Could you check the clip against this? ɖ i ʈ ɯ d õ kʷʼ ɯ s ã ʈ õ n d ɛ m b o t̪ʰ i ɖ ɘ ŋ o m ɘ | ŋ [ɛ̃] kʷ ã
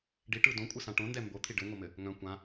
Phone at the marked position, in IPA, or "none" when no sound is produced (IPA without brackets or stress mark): œ̃